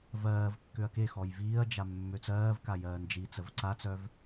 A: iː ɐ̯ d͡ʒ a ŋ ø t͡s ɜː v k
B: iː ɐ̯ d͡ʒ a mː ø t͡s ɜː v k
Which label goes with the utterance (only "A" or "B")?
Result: B